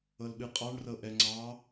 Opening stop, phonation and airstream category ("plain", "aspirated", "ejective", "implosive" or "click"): implosive